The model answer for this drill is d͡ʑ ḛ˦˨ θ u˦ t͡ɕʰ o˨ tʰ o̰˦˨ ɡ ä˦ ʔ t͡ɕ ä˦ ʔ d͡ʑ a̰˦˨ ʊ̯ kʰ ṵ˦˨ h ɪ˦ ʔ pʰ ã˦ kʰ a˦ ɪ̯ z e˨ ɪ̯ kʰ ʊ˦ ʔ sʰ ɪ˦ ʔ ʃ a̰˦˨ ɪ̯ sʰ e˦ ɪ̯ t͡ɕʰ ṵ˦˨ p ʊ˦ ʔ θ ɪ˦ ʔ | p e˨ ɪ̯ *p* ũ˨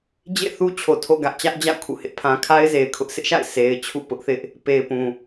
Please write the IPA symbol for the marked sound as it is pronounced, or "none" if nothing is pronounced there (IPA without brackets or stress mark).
p